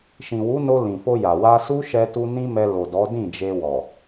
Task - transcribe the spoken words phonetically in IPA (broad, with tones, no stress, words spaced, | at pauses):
ʃĩ˨wu˨˦no˧ lĩ˨fo˧ja˨ wa˧ su˦ʃɛ˧ tu˧ nĩ˦mɛ˧ lo˨dɔ˨˦ dĩ˦˨d͡ʒe˧ wɔ˨